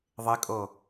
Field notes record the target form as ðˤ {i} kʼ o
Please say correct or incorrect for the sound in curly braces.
incorrect